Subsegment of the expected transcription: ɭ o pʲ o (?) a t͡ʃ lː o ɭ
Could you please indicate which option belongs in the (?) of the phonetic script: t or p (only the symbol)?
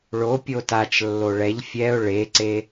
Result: t